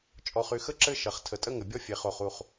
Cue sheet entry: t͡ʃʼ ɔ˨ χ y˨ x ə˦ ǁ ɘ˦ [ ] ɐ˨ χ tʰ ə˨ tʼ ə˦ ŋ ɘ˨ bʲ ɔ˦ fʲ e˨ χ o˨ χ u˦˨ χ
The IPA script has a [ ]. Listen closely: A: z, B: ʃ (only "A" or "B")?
B